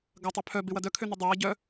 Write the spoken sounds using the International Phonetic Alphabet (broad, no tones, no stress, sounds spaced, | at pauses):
ɡ ɐ tˤ ø pʰ œ b ɪ w ɐ d œ kʰ ø n ø dˤ ʊ w ɐ ɟ œ